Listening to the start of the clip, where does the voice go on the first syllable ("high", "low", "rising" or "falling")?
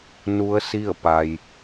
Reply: rising